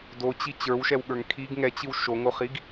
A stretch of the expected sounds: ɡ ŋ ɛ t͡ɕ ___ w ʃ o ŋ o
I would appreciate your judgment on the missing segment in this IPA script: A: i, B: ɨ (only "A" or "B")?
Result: B